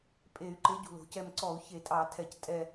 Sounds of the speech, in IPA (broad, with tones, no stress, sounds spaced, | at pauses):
pʼ e˧˩˧ y̯ ǃ e˨˥ ɟ ṳ˩ l o̤˩ c ɛ˦˨ m ǀ ɔ˧˩˧ u̯ ç e˧˩˧ tʼ ɑ˧˩˧ tʰ ɛ˧˩˧ c tʼ ɛ˦˨